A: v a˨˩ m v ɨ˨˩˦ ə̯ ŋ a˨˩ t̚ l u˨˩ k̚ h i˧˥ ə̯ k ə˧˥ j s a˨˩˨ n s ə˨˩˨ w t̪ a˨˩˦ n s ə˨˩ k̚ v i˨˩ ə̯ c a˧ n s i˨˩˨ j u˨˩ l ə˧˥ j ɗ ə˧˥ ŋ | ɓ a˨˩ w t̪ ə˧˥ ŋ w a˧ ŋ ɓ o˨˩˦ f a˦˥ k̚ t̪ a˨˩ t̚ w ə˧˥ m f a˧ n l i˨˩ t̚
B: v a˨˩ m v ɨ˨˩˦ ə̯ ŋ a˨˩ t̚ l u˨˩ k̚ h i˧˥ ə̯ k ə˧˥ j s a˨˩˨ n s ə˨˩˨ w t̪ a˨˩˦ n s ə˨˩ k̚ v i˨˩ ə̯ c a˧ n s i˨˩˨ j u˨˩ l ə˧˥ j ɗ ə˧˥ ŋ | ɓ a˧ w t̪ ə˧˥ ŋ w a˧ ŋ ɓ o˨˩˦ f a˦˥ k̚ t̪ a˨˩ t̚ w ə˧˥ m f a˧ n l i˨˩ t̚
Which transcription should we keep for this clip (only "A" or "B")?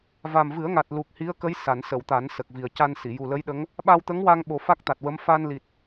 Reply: B